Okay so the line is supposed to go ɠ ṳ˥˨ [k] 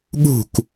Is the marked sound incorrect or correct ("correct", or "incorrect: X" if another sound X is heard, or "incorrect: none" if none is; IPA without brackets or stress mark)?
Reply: correct